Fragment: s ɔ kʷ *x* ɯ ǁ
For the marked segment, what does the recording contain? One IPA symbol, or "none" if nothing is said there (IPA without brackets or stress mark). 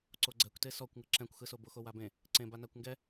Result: ŋ